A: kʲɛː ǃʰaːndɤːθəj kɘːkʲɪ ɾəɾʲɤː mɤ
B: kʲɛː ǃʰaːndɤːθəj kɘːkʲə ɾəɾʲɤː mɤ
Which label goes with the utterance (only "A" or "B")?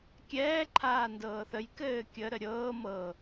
B